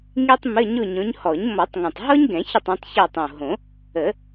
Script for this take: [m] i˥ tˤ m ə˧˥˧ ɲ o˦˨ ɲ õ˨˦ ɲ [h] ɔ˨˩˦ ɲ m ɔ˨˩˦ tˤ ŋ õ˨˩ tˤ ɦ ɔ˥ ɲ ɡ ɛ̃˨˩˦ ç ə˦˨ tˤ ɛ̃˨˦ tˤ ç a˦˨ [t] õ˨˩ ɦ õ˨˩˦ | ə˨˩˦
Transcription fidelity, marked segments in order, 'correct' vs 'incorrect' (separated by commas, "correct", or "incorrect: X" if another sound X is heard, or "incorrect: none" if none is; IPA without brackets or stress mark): incorrect: ŋ, correct, incorrect: tˤ